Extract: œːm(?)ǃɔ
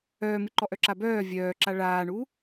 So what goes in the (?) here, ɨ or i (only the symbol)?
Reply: ɨ